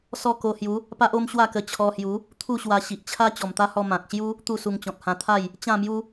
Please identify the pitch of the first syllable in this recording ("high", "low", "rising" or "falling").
falling